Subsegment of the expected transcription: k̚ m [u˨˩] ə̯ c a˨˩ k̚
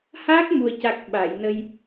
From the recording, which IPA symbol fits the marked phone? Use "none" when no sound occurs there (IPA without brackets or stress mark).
u˨˩